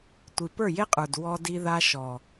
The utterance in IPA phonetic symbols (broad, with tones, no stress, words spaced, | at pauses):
tʷi˨pə˞˦˨je˦qʼə˞˨d wɔ˦di˦ða˦ ʃɔ˨